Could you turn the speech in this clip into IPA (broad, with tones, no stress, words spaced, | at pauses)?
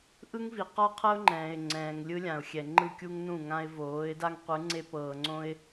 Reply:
ʔɯ˦ŋvi˨qɔ˦qʰɤ˦ʊ̯ ŋ͡ǃɛ̃ː˨ɪ̯ŋ͡ǀɛ̃ː˨ŋ lʲɯ˦lʲã˨ʊ̯xʲɛ˨ ŋ͡ǃɯ˦˨kʲu˦ŋnũ˦˨ŋã˦ɪ̯ voː˨˦ɪ̯ da˦ŋqʷɯ˨˦ ŋ͡ǀe˦ pɤː˨ŋ͡ǀõ˦ɪ̯